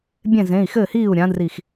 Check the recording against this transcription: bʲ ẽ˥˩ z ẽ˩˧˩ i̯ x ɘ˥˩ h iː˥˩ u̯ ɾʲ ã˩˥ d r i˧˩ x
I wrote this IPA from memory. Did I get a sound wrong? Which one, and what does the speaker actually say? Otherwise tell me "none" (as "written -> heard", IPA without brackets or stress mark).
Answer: none